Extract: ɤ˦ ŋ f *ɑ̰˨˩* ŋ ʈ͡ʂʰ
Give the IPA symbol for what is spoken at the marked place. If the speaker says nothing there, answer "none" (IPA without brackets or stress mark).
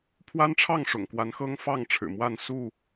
ɑ˥˨